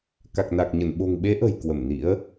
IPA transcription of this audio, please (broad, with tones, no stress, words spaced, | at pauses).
ka˨˩k̚na˨˩k̚ɲə˧˩n ɓo̤˨˩ŋɓe˨˦ʔə̤˨˩j kwə˧˩mnḭ˧˥ə̯